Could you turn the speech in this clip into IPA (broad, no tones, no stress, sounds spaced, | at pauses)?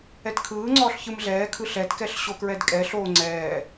ɛ t kʰ ɯː ŋ͡ǀ ɔː ɬ ç ɯ m ɮ ɛː kʰ ɯ ɬ ɛ t k ɛ ɬ ɕ o k ɹ ɛ d kʼ ɛ ɬ oː ŋ͡ǀ ɛː